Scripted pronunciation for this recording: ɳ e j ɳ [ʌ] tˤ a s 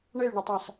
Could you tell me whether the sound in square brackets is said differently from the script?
no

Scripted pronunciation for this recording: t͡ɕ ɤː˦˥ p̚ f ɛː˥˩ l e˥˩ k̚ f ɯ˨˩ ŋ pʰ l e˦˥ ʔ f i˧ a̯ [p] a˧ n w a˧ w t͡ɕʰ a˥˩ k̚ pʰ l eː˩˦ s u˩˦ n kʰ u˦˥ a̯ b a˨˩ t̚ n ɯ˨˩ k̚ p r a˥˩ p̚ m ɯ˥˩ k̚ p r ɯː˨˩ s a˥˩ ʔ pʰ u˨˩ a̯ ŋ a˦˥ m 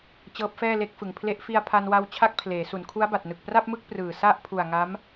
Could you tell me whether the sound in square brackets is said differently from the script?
yes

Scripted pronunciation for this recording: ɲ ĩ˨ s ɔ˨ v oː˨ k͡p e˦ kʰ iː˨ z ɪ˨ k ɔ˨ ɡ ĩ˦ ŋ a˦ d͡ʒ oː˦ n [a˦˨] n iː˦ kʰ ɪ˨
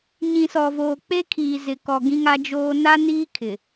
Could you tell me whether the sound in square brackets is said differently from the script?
yes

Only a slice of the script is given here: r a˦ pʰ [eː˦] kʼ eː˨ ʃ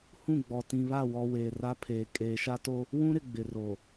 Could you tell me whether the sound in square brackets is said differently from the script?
yes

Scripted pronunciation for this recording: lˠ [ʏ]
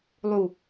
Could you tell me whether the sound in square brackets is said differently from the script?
yes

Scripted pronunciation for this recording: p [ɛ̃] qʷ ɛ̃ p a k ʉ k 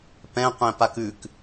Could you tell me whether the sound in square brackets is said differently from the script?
no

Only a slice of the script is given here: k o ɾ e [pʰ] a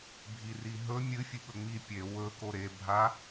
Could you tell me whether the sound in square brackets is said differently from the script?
yes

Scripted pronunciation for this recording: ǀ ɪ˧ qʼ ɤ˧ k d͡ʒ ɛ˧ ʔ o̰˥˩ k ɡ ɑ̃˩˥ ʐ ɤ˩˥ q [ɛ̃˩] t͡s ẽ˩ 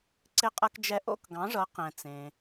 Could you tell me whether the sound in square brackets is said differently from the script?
no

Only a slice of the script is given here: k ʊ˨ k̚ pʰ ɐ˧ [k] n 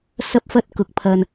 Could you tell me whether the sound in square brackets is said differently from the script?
yes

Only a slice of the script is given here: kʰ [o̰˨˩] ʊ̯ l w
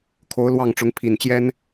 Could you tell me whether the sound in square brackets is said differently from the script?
yes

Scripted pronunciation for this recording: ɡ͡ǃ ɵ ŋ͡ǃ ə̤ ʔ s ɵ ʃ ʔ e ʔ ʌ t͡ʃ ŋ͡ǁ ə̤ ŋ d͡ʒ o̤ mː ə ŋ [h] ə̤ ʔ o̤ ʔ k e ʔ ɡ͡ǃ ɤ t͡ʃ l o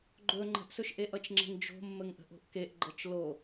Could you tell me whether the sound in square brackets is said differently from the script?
yes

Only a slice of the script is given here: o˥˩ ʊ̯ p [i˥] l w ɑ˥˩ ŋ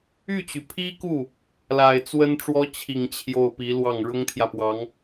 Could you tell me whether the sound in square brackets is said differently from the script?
yes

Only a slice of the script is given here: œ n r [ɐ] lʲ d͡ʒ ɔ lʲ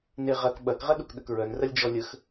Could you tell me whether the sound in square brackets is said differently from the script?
no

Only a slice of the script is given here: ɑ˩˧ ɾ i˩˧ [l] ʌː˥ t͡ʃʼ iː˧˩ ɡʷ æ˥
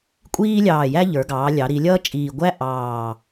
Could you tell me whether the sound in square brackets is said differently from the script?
yes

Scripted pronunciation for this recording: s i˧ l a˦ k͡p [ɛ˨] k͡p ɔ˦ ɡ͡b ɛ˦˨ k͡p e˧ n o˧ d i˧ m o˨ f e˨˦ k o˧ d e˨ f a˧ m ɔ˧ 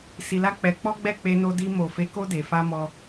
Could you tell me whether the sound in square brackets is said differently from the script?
yes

